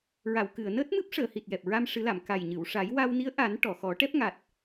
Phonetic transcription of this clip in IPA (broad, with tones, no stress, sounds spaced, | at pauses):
ɹ a˨˩˨ w k ɨ˨˩˨ ə̯ n əː˦˥ t̚ m ɨ˦˥ p̚ ʂ əː˨˩˨ h i˨˩ t̚ j ɛ˨˩ p̚ ɹ a˧ m ʂ ɨ˨˩˦ l a˨˩˨ m k a˨˩ j ɲ ɨ˨˩˨ w ʂ a˨˩˦ j w a˧ w n i˧˥ ə̯ ʔ a˨˩˦ n ʈ ɔ˨˩˨ x ɔ˨˩˦ ʈ ɛ˦˥ p̚ ŋ a˨˩ t̚